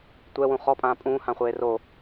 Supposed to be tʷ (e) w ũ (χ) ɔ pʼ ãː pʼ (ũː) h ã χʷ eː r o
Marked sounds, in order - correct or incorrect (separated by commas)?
incorrect, correct, correct